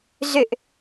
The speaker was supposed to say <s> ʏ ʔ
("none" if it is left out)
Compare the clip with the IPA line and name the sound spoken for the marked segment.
z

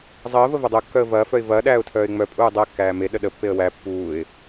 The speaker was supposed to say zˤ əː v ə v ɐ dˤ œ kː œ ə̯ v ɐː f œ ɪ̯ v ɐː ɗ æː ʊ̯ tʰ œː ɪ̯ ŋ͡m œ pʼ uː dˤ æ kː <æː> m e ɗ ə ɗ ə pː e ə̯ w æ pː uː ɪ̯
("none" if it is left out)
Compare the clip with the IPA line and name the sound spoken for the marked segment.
æː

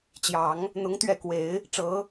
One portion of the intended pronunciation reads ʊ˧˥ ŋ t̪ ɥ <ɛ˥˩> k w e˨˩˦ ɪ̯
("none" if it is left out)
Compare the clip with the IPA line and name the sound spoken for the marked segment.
ɛ˥˩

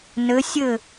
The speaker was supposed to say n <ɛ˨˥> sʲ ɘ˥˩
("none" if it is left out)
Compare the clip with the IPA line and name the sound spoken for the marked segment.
ɘ˨˥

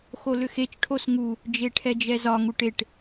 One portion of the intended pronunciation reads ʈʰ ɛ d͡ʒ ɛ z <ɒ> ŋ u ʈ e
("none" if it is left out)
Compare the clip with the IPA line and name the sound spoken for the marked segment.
ɒ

